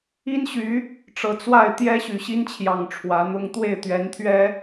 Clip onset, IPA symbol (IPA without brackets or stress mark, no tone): i